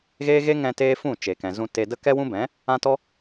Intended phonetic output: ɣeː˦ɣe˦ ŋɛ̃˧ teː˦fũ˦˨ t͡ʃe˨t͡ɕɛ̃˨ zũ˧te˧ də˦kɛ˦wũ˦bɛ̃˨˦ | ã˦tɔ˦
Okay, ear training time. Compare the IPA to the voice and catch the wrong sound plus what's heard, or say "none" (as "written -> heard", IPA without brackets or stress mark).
t͡ɕ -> k